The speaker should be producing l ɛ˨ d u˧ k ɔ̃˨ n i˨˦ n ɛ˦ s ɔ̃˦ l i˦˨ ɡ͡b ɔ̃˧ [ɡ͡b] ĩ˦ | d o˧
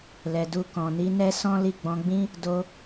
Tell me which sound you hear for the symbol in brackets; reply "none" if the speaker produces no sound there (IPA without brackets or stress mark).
ɡ͡b